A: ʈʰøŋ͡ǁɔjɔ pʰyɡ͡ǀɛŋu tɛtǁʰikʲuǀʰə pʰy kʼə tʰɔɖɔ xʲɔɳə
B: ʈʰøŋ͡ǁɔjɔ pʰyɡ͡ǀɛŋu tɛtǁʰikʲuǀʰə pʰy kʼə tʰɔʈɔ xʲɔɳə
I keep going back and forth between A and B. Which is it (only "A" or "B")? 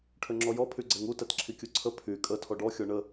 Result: A